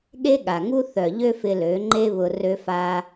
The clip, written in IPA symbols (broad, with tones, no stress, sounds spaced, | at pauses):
ɠ e˦ ɠ a˨ ŋ u˦ θ œ˨ ʎ ø˦ f ɪ˧ l ø˨˦ ŋ͡ǃ e˦ β ʊ˧ r ø˧ f a˧